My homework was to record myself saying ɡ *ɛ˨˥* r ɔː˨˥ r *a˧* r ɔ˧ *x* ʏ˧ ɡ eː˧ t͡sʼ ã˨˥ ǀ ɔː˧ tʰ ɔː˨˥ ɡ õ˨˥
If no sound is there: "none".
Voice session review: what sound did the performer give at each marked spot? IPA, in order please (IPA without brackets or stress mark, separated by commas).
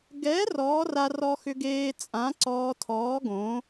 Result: ɛ˨˥, a˧, x